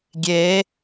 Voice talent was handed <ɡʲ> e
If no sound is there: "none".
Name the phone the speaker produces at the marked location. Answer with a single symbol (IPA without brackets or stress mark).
ɡʲ